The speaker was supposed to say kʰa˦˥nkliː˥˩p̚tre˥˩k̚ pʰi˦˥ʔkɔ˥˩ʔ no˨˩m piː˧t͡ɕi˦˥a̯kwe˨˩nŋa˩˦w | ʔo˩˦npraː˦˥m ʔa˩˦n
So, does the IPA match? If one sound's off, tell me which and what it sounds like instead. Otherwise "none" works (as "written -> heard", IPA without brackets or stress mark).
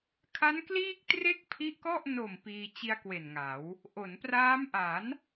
p̚ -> k̚